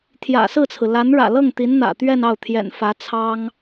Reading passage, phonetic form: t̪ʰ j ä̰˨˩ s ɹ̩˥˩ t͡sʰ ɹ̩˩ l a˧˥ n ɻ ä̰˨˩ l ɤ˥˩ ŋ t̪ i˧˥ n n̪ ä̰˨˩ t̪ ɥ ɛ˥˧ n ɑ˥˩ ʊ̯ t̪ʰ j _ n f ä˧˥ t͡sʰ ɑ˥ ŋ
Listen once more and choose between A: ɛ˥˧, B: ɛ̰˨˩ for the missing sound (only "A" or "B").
B